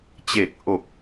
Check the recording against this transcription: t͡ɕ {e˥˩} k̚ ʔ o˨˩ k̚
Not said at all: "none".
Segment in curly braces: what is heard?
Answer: e˨˩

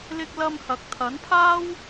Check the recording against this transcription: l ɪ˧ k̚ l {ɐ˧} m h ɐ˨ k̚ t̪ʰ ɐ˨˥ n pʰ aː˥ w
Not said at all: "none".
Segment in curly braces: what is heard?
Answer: ɐ˧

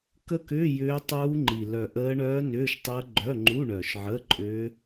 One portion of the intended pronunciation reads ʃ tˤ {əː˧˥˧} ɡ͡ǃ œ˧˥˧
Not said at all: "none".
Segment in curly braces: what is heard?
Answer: əː˦˥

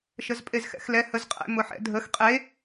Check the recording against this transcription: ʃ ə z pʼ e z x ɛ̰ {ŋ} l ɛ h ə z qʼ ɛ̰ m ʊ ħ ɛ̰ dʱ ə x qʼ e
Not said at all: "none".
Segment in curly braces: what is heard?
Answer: x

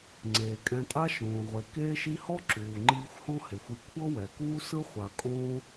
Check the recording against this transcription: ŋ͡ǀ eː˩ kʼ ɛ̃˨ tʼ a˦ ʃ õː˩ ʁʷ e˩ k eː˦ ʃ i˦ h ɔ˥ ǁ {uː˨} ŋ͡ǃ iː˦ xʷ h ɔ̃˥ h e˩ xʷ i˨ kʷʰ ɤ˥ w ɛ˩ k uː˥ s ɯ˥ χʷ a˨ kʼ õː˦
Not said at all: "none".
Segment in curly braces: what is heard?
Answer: uː˨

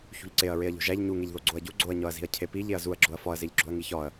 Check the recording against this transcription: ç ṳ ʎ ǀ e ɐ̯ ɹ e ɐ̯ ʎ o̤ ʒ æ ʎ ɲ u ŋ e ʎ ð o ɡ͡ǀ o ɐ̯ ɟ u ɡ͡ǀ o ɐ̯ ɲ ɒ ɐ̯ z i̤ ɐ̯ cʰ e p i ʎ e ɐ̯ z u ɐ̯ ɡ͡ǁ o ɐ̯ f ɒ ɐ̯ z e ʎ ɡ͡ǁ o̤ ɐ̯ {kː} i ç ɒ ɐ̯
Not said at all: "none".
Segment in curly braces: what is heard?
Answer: ŋ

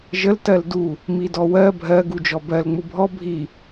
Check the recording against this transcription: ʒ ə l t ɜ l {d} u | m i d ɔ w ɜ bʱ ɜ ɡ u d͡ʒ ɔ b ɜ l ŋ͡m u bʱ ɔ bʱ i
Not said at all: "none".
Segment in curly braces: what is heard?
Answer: d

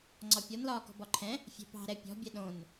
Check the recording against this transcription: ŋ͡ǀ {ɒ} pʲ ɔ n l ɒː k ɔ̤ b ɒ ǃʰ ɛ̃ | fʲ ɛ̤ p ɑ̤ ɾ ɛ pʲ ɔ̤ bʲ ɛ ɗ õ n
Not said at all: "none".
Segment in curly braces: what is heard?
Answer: ɒ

